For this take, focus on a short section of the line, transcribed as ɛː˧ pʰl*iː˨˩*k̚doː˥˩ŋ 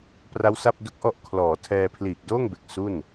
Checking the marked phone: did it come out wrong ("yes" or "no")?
no